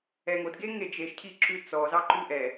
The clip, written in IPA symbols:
ɛ ŋ o d ɡ e ŋ e d͡ʒ e ʃ cʰ i ǁ ʉ t͡s ɔ z ɑ ǃ ʉ ʔ ɛ

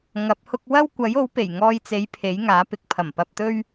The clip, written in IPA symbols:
ŋ ɐ˨˥ p̚ h ʊ˥ k̚ w ɐ˥ w kʷ ɐ˨˥ j o˨˥ w p e˨˩ j ŋ ɔː˧ j t͡s e˨˥ j pʰ e˨˥ j ŋ aː˨˥ p ɪ˨ k̚ pʰ ɐ˨˩ m p ɐ˧ p̚ t̪ ɵ˥ ɥ

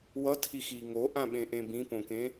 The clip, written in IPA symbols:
w ʌ tʰ i x i ŋ o ʔ ã ɓ ẽ ʔ ẽ b ĩ p õ k ẽ

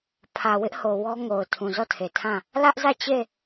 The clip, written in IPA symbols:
pʰ ä˨ w ɪ˦ ʔ h o˨ w ɔ˦ ŋ o˨ ʊ̯ tʰ ũ˨ z ɔ˦˨ tʰ e˨ tʰ ã˦˨ | l ä˦ ʔ z ä˦˨ t͡ɕ e˦˨

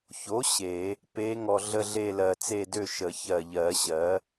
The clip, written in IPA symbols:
ç o˩˥ ɕ e˨˩˦ | p e˧˥ ŋ ɔ˧ ɮ ə˥˧ ɮ e˥˧ l ɜ˧ t͡s e˥˧ d ø˥˧ ʃ ə˨˩˦ ç ɜ˨˩ ʎ ɜ˨˩˦ ɕ ɜ˩˥

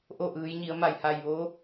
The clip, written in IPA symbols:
ʔ o˥˨ ʔ ɯː˩˧ j ɲ i˩˧ ə̯ m a˧˩ j h a˧˩ j ʋ o˧˥

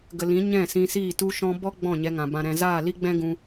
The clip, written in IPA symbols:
ɡ ə˨ l ĩ˨˦ ɲ ɛ̃˦˨ s ĩ˧ s iː˦˨ t u˧ ʃ ɔ̃˧ b ɔ˦ ɡ͡b ɔ̃˦˨ ɲ ɛ˧ ŋ ã˨ b ã˨ ɾ ɛ̃˨ z aː˦˨ l i˦ ɡ͡b ɛ̃˦ ɡ ũ˧

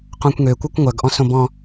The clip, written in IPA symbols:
q õ kʷ ŋ ø kʷ œ kʷ ŋʷ œ ɡ ʔ ɔ̃ s õ b ɔ̃

